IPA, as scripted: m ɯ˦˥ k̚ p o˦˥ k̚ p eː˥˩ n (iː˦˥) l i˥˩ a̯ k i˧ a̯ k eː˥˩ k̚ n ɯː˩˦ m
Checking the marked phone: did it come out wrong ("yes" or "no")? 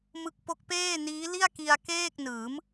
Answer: no